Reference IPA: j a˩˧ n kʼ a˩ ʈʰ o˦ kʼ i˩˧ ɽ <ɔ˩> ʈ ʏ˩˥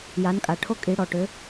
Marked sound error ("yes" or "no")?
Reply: no